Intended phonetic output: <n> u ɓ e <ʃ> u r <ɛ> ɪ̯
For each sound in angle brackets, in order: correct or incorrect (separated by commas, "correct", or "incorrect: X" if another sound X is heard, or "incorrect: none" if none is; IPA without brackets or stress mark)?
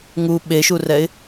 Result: incorrect: ŋ, correct, correct